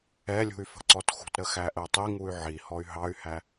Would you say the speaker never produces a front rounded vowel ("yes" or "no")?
no